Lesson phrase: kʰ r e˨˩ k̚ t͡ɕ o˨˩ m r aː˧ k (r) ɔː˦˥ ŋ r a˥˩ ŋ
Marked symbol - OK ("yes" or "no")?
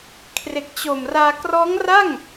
yes